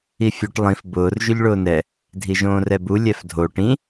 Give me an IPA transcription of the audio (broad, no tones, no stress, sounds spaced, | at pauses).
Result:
i fʲ u ʈ lˠ ĩ f b ʊː r ʒ ʉ ʎ ɭ ʊː n ɛ | dʱ i ʒ õː r ɛ b u lʲ ɛ f dʱ o ʈ ĩ